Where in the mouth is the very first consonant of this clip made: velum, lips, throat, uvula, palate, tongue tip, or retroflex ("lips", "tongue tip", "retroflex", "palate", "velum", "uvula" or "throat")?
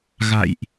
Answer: velum